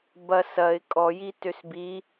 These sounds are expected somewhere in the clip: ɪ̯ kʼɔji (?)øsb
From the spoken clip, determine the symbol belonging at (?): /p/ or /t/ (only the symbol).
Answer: t